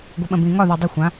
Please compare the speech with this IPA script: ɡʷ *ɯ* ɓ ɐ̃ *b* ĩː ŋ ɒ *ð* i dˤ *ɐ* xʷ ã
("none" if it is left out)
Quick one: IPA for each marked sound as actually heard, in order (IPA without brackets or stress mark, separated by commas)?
ɯ, b, ð, ɐ